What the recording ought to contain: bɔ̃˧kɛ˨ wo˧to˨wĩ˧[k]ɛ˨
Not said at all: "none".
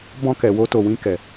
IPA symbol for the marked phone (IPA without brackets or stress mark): k